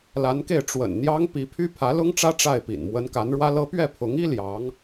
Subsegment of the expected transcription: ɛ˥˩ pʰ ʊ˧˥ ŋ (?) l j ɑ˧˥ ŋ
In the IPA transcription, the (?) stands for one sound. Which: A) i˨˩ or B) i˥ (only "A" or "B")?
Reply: B